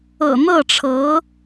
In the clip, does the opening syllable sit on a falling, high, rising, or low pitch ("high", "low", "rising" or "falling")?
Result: low